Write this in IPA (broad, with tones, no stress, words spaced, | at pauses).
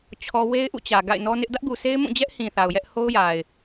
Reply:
t͡ɕʰɔ˦ we˦ɪ̯ʔṵ˦˨t͡ɕä˨ ɡa̰˦˨ɪ̯ nɔ˦nɪ˦ʔ dä˦ʔɡu˨se˦ɪ̯mũ˦˨ d͡ʑɛ˦ʔhĩ˨ θa˨ʊ̯jɛ˦ʔ ho˦ʊ̯ja˨ɪ̯